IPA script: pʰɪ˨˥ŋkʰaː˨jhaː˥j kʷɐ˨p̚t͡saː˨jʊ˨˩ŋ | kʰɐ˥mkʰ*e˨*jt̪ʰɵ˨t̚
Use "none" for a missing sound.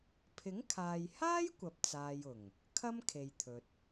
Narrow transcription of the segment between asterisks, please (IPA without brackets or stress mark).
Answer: e˨